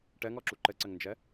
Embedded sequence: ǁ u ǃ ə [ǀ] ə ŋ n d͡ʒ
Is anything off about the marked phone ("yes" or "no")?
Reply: no